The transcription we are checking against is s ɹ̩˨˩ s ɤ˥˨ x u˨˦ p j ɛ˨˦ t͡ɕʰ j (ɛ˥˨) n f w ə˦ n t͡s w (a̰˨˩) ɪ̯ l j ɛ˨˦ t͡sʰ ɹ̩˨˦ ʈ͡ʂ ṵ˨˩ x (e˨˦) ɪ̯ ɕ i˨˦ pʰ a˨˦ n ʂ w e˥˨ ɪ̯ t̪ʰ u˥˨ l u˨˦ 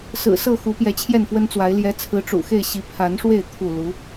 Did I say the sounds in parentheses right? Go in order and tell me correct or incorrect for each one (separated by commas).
correct, incorrect, incorrect